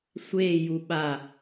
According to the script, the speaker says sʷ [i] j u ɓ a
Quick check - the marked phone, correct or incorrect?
incorrect